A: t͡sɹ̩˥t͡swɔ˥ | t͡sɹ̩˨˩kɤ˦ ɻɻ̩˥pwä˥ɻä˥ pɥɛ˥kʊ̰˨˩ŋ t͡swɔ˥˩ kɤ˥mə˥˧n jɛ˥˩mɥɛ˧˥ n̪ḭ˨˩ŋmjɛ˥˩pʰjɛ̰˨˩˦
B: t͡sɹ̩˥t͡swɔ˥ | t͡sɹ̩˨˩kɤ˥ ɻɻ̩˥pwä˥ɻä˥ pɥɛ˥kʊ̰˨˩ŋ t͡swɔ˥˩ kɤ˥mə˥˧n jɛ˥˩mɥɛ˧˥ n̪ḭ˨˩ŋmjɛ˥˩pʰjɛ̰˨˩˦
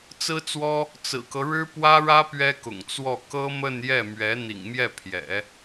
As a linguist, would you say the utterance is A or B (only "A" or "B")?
A